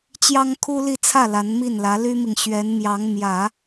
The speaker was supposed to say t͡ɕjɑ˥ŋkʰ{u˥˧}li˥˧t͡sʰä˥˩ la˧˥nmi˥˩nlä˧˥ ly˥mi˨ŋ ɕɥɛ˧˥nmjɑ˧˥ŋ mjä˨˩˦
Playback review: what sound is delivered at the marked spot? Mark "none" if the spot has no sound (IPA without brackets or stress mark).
u˥